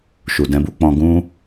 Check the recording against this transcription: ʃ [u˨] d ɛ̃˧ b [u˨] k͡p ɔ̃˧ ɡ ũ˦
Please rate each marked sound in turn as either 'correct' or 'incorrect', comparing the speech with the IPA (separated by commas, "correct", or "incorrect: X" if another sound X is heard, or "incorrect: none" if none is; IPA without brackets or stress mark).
correct, incorrect: u˧